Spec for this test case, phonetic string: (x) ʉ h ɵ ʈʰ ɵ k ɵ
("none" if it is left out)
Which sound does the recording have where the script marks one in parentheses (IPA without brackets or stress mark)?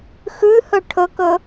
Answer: x